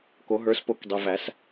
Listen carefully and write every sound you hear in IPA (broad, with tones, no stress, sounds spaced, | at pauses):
k o˨˩˦ ɦ ə˞˨˩˦ s p o˨˩˦ k dˤ e˩˧˩ v æ˨˩˦ s